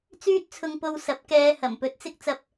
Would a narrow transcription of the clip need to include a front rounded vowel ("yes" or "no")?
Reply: yes